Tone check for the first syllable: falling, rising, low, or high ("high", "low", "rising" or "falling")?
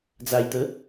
low